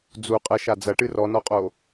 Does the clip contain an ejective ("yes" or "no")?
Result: yes